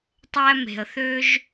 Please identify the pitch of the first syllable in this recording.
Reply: high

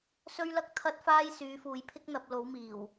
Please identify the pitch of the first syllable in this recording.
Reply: high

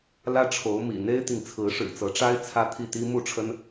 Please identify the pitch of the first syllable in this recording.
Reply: high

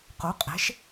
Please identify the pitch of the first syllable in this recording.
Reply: rising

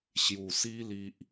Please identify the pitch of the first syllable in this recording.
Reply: low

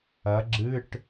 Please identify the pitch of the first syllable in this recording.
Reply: rising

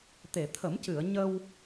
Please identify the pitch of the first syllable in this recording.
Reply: low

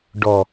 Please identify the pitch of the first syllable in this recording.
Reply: low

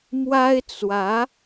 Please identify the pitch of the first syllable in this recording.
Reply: high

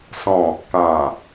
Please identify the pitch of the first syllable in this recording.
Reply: low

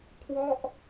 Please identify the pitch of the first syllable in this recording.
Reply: falling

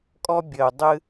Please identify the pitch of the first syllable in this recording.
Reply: high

